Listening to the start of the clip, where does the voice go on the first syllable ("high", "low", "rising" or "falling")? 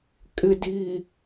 low